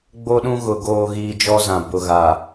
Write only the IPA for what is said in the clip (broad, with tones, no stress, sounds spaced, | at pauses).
ɡ͡b o˦ ɗ ũ˦ ɣ ʊ˨ ɡ oː˨ ɣ iː˨ d͡ʒ ɔ˦ z ã˨ b ʊ˨ ɣ a˨